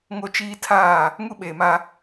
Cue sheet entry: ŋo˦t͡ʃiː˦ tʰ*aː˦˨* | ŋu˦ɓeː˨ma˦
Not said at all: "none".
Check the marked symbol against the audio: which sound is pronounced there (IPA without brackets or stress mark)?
aː˦˨